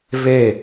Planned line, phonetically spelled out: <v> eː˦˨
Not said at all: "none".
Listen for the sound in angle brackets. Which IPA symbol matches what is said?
v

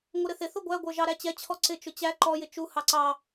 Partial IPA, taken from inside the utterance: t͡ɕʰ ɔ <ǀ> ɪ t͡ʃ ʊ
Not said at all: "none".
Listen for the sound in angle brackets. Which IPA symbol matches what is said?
ǀ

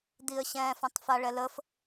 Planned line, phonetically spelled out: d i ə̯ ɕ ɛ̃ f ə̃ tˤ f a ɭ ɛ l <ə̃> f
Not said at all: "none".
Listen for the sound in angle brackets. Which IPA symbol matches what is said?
ə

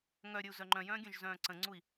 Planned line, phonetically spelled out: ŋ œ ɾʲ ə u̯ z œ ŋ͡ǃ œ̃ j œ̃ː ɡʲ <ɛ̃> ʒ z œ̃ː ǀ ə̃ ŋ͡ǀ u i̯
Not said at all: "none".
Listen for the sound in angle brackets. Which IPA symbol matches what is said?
œ̃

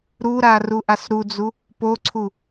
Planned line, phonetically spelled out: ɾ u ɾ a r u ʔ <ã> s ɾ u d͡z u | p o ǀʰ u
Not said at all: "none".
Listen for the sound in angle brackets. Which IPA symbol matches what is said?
a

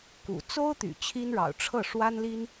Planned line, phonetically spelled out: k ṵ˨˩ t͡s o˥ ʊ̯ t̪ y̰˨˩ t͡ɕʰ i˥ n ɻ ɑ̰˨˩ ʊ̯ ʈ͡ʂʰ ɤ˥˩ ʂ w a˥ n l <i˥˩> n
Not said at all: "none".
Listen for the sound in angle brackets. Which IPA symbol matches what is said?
i˥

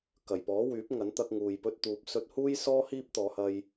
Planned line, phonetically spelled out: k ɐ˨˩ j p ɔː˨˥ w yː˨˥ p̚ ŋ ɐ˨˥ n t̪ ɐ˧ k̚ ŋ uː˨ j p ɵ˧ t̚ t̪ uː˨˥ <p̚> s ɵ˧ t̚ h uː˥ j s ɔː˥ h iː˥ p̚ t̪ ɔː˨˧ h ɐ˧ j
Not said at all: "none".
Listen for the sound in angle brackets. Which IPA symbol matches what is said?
p̚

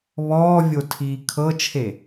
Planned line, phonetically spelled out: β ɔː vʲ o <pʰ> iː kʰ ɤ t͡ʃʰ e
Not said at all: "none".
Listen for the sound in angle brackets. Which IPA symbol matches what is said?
tʰ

